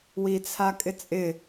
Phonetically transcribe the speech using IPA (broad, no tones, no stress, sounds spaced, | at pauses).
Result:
w i t͡sʰ a kʼ ɪ t͡sʼ ɪ